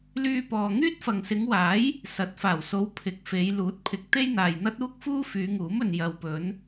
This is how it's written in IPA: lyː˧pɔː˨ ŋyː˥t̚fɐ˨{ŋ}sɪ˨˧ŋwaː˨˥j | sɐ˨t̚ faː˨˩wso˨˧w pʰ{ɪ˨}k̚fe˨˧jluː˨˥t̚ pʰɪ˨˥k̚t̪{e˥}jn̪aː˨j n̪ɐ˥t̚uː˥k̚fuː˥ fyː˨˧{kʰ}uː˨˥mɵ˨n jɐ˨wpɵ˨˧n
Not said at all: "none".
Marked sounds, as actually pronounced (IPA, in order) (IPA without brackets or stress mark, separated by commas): ŋ, ɪ˨, e˥, ŋ